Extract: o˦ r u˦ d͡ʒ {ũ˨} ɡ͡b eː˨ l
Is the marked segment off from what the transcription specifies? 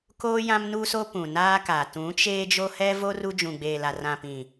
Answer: no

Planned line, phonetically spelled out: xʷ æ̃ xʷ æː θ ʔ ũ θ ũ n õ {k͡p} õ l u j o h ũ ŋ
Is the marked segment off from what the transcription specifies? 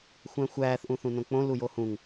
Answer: no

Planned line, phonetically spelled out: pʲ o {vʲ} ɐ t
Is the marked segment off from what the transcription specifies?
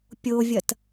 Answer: no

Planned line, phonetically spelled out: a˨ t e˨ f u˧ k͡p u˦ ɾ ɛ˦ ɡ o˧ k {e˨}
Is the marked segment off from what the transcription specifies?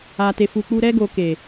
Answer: no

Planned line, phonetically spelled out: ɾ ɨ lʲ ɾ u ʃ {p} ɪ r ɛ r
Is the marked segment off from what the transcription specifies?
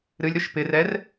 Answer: no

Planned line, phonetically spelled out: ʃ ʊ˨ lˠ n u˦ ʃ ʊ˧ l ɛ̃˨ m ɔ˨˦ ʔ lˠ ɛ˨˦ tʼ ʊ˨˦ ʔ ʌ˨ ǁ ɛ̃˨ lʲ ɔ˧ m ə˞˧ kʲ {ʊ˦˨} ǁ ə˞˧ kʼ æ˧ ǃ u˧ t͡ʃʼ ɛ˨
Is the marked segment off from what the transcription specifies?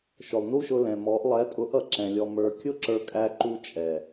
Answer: yes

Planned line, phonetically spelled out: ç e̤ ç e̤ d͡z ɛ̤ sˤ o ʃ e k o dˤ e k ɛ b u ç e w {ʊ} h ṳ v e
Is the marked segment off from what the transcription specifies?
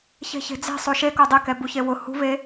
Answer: no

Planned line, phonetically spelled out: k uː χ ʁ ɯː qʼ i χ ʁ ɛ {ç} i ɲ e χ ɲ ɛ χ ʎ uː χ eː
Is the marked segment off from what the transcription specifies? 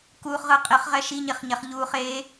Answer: yes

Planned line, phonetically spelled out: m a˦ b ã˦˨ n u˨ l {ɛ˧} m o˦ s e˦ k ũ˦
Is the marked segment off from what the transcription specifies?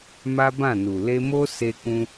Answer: yes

